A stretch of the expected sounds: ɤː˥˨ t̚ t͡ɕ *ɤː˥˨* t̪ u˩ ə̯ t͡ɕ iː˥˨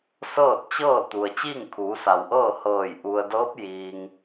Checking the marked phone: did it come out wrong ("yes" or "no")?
no